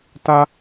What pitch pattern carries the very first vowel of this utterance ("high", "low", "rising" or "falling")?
high